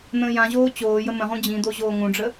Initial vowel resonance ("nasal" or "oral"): nasal